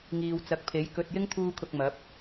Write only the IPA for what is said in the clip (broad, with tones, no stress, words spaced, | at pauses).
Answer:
ŋiː˨wt͡sɐ˨˥k̚pʰe˨˥j kɵ˨t̚ jɪ˥ŋt̪ʰuː˧kʰʊ˨k̚ mɐ˨˥p̚